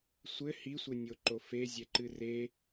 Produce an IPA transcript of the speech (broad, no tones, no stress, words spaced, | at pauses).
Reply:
sʷɘ hisʷɘnʲoǃo fezʲɛǃɨ re